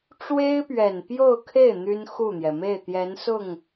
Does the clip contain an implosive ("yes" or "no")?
no